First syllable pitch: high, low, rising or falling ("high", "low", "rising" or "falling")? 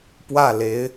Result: falling